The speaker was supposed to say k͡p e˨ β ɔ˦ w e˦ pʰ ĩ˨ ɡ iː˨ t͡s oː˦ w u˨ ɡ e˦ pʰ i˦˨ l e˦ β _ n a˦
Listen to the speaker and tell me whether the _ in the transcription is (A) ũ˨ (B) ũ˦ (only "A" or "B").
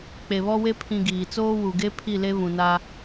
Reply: A